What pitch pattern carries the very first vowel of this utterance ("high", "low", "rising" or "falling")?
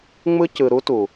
high